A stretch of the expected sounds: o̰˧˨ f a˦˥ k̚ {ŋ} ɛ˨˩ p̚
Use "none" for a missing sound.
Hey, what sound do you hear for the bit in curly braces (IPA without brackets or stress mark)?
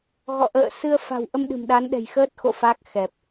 x